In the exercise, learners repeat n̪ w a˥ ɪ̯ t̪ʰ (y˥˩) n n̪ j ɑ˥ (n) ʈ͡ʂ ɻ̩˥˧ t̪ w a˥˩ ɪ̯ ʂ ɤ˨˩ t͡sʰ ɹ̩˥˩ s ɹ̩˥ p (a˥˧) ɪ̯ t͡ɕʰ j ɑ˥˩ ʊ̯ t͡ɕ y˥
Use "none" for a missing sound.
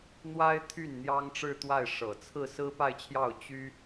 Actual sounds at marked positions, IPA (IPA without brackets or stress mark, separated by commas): y˥˩, ŋ, a˥˧